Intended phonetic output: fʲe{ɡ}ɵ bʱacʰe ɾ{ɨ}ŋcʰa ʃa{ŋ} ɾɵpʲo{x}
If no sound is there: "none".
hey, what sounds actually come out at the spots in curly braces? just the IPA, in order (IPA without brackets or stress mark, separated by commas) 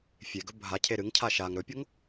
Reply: ɡ, ɨ, ŋ, ŋ